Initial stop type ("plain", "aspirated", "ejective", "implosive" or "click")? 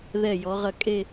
ejective